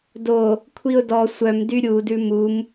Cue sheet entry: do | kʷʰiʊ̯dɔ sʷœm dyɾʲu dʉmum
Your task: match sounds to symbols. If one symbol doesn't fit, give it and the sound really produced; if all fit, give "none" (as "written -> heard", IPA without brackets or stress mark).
none